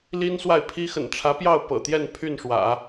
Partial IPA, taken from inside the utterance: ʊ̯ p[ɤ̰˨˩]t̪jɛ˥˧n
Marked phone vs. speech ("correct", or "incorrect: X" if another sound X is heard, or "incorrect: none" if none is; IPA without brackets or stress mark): correct